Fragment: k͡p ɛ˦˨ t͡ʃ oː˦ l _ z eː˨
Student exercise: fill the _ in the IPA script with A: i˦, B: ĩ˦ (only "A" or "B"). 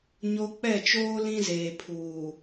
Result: B